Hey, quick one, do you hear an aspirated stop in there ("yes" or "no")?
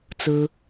no